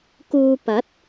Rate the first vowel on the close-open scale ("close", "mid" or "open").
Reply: close